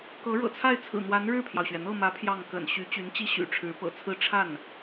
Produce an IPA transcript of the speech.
k ɤ˧˥ ɻ ɤ̰˨˩ t͡sʰ a˥˩ ɪ̯ t͡sʰ ɹ̩˨˩ n̪ w a˧˥ n ɻ ɻ̩˥˩ pʰ j ɑ˩ ʊ̯ ɕ ɥ ɛ˩ n̪ ɤ˥˩ m ä˧˥ pʰ j ɑ˥˩ ŋ k ə̰˨˩ n ɕ y˧˥ t͡ɕ y˧˥ n t͡ɕ i˥ ɕ y̰˨˩ ʈ͡ʂʰ ɻ̩˧˥ p ɤ̰˨˩ t͡sʰ ɹ̩˥˧ ʈ͡ʂʰ a˥˩ n

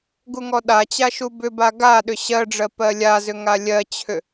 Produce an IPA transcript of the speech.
ɡ u ŋ ɔ ɗ a t͡ɕ a ʃ u b ʏ b a ɡ a ɗ ʏ ɕ ɜ ɖ͡ʐ ɜ p ɜ lʲ a z ʏ ŋ a lʲ ɜ t͡ɕʰ ʏ

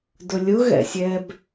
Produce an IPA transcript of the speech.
d ʊ lʲ ʊ ɣ ɛ̰ sʲ ɛ b

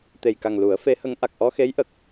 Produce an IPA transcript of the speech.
t̪ e˨˩ j k a˨˩ ŋ l u˨˩˦ ə̯ f e˧˥ h ə˧˥ ŋ ʔ a˨˩ k̚ ʔ ɔ˧ x e˧˥ j ʔ ə˨˩ k̚

